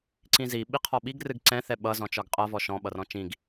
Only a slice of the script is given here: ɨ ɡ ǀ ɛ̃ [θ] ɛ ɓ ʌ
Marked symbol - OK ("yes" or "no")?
yes